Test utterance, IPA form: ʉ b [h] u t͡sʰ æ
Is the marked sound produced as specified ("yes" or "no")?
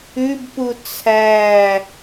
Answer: no